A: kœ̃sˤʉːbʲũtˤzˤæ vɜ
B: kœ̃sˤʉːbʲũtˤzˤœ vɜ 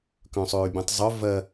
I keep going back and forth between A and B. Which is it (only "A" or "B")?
B